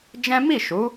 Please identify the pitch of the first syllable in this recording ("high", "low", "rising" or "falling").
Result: high